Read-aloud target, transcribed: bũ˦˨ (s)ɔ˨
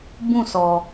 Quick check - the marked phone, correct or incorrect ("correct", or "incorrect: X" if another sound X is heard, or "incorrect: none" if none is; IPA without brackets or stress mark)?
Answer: correct